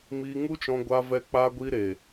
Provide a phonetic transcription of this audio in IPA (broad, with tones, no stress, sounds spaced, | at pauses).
m iː˧ ŋ u˦ t͡ʃ ɔ̃˧ ɡʷ a˧ v ɛ˧ k͡p aː˧ ɡʷ iː˧ ɾ e˨